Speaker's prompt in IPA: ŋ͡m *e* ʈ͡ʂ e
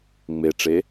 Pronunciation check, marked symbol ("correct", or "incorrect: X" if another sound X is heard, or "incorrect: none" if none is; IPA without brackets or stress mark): correct